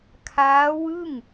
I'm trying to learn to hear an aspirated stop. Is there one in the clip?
yes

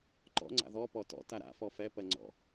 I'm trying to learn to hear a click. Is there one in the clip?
yes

